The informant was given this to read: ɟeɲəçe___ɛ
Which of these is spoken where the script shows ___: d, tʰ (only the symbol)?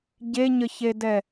d